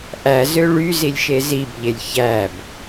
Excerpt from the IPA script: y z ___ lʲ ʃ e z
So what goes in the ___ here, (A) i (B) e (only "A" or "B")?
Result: A